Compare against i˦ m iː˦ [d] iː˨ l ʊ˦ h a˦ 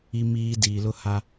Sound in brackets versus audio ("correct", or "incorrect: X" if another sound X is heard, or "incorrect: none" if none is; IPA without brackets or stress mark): correct